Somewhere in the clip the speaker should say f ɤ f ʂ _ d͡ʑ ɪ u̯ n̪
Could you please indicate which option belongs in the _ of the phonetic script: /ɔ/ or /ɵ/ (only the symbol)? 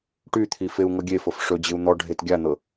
ɵ